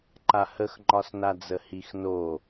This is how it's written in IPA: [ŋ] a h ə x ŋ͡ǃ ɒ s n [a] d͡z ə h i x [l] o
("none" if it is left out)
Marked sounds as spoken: ǃ, a, n

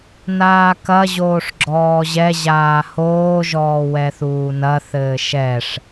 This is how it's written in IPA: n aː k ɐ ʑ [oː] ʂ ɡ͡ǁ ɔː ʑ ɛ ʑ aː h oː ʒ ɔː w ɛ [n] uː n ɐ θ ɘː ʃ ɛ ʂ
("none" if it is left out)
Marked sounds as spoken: oː, θ

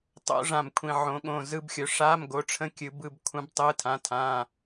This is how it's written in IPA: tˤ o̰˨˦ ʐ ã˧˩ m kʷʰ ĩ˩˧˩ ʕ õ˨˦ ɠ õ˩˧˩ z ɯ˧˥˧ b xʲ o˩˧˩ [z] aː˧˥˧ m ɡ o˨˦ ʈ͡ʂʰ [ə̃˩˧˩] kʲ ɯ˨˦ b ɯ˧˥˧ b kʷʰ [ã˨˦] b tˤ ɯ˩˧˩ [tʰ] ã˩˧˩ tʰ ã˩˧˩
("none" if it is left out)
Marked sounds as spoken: ʂ, ə̃˧˥˧, ã˨˦, tʰ

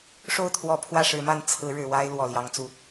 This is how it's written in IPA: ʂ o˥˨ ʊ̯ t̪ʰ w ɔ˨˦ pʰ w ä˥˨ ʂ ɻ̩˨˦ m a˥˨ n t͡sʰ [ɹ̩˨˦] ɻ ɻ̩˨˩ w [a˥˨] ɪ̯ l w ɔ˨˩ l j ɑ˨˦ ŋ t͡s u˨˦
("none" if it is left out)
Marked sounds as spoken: ɹ̩˨˦, a˦

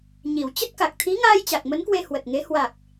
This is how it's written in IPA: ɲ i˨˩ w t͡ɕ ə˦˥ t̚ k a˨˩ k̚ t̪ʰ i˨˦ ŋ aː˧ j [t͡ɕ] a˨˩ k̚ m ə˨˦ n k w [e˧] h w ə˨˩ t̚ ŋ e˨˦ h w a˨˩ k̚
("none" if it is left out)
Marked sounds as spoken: t͡ɕ, e˧

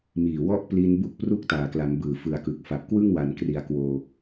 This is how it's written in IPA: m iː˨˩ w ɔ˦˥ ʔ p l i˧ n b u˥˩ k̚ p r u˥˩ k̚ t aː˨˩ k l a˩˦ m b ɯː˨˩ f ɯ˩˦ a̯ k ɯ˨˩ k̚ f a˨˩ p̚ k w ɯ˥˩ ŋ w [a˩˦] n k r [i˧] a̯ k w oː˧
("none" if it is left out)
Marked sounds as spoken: a˩˦, i˩˦

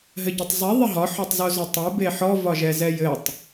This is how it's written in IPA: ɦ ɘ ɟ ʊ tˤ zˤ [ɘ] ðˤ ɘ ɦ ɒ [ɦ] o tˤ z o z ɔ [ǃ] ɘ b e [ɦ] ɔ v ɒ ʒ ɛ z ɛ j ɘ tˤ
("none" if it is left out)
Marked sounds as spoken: e, ħ, tˤ, ħ

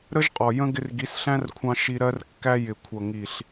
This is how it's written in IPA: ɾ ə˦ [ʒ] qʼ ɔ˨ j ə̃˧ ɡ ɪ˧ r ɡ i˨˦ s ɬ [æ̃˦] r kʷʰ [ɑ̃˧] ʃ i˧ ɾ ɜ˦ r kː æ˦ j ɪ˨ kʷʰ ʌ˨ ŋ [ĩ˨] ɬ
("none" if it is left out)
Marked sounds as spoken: ʒ, æ̃˦, ɑ̃˧, i˨

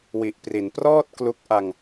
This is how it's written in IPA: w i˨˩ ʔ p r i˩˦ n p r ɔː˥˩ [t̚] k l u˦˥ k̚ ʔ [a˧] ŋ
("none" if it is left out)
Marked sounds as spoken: t̚, a˧

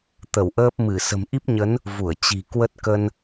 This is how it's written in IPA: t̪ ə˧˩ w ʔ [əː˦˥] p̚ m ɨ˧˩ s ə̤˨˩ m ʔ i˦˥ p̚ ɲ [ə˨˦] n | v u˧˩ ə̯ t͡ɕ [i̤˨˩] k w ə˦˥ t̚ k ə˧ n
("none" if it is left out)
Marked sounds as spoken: əː˦˥, ə˨˦, i̤˨˩

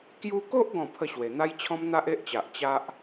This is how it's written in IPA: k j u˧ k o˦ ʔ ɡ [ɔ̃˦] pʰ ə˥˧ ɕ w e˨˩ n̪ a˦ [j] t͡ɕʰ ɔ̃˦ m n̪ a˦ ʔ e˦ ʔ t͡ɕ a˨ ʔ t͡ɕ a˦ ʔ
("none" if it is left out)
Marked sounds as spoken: ɔ̃˥˧, j

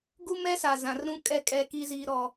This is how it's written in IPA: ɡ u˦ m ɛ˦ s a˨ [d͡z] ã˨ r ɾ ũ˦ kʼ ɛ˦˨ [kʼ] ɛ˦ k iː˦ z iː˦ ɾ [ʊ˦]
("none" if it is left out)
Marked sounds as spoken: z, kʼ, ɔ˦

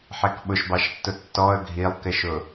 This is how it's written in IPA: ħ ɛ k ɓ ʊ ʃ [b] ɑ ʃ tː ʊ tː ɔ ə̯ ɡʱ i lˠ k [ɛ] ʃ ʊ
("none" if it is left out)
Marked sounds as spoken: b, ɪ

